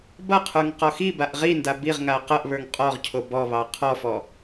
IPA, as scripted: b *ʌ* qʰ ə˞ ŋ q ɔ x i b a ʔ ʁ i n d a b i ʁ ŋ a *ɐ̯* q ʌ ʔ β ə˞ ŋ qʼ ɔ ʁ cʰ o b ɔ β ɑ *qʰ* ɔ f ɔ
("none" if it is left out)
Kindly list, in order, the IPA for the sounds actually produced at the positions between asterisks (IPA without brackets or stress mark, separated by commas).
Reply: ʌ, ɐ̯, qʰ